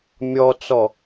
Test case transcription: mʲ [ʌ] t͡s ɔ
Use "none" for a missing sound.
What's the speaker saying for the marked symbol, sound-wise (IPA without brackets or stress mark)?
ɔ